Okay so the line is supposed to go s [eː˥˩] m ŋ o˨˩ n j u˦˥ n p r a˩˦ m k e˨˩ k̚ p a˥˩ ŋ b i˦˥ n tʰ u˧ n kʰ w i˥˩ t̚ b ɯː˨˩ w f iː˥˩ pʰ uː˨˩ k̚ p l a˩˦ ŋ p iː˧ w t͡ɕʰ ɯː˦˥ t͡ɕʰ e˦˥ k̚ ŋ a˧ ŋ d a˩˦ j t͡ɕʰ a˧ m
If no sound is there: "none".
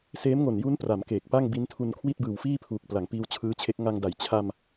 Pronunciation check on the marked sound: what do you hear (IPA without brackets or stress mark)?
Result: eː˦˥